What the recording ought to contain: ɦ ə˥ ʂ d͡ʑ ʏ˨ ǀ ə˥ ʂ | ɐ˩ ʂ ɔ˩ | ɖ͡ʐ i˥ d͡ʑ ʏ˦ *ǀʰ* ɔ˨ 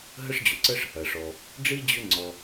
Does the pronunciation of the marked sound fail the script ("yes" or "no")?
yes